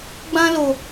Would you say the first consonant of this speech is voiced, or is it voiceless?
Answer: voiced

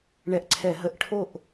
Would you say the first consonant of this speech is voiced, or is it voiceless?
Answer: voiced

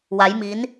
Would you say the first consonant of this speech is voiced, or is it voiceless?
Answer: voiced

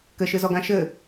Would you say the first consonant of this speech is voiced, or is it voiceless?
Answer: voiceless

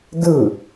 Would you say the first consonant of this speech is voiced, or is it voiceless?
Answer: voiced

